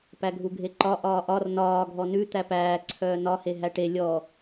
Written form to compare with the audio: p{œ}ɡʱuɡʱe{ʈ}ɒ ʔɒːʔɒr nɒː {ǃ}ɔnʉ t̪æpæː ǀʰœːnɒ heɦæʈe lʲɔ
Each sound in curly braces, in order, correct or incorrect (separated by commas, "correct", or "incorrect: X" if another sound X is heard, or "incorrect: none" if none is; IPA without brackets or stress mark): incorrect: æ, incorrect: ǃ, incorrect: ɡʱ